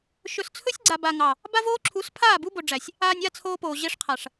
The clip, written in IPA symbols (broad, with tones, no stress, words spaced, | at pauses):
ʃɵ˨st͡sʰɵ˦sʲɡ͡ǀa˨b a˨ŋɑ˨ | ba˦voː˦ǁʰu˨˦s pʰaː˦˨bu˦bo˨ɖ͡ʐæ˨sʲ | aː˨nʲa˦˨ t͡sʰoː˦poː˨ ʑe˦ʂqʰa˨ʂ